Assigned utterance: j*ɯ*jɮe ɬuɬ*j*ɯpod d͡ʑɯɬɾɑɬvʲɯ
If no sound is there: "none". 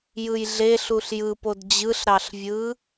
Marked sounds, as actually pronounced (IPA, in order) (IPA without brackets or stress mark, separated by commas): ɯ, j